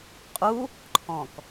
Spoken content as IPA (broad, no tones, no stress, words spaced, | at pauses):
qʼu | ǃʰɔ̃k